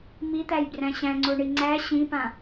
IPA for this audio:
m i t̪ æ j b r æ̃ ɕ æ̃ ŋ͡ǀ o ɳ i ŋ͡ǀ æ ɕ ĩ p ã

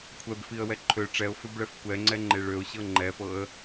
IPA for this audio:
kʷʰ ɛ b f i ə̯ w ɛ ǃʰ ø ʈ͡ʂ ɛ ʊ̯ f ø b ɭ ɛ f kʷ ɛ ŋ͡ǀ ɛ ŋ͡ǃ e ɭ ø ʊ̯ ɕ ɤ ŋ͡ǃ ɛ f ɤ ə̯

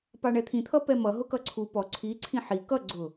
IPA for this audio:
p ɑ ɳ ɛ t̪ʰ ĩ t̪ʰ ʌ p ɛ m ʌ ɦ ʊ k ʌ ǀʰ u p ɔ ǀʰ i ǀʰ ĩ ħ i k ʌ ɡ͡ǀ ʊ

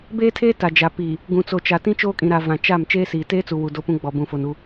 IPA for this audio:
b eː˦ tʰ eː˦ t a˨ d͡ʒ a˨ p iː˨ | ɡ ũ˨ t͡s o˨ t͡ʃ a˨ t ĩ˦ t͡ʃ oː˦ kʼ ĩ˨ ɾ a˨ v ã˨ t͡ʃ a˦˨ m t͡ʃ eː˦ s iː˨ t eː˦ t͡s u˨ w u˨ d o˦ p ũ˦ ɡ͡b ɔ˨ b ũ˨ f o˨ n u˦

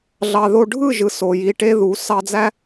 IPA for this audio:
ɮ ɑ˨ ð o˧ ɖʱ ɯ˦˨ ʒ ɯ˨ s o˨ j i˧ ʈ e˦ ð u˨˦ s ɑ˧ d͡z æ˦

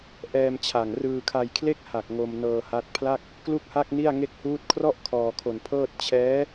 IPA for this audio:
ʔ ɛː˧ m t͡ɕʰ a˨˩ ŋ r ɯː˧ kʰ a˧ j kʰ l e˥˩ k̚ h a˨˩ k̚ ŋ o˧ m n ɤː˧ h a˦˥ t̚ pʰ l a˥˩ k̚ | k l u˥˩ k̚ h a˥˩ k̚ n i˥˩ a̯ ŋ e˦˥ k̚ h uː˦˥ t̚ kʰ r ɔ˥˩ ʔ kʰ ɔː˧ kʰ o˧ n pʰ ɤː˥˩ t̚ t͡ɕʰ ɛː˦˥

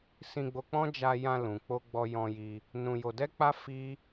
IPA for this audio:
s ĩ˧ ɡ͡b o˧ k͡p ɔ̃˦ d͡ʒ a˧ j ã˧ l ũ˨ k͡p o˧ ɡ͡b ɔ˧ j ɔ̃˧ j i˧ | n ũ˧ j o˧ d ɛ˦ k͡p a˦ f i˦

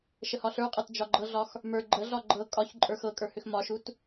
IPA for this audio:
ʃ ə h ɒ ɬ ə˞ qʼ ɤ t d͡ʒ ɒ ɡ͡ǃ ɤ ɮ ɒ x | m ə˞ ɡ͡ǃ ə ɮ ɒ ɡ͡ǃ ɤ kʼ ɒ ç ǃʼ ə˞ x ɤ kʼ ə˞ h ʏ x m ɒ ʃ u t

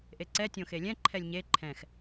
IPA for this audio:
ʔ e ǀ ɛ tʲ õ x e lʲ ɛ̃ ǃʰ ɛ lʲ ɲ e ǃʰ ɛ̃ x

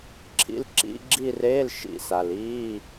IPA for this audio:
ǁʰ ḭ˦˨ l ǁ ḭ˧˥˧ ɡ͡ǁ i˦˨ r eː˧˥˧ l ʃ ḭ˦˨ s a˨ l iː˧˥˧

